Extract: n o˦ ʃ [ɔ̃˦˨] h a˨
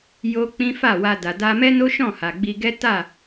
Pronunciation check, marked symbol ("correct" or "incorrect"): correct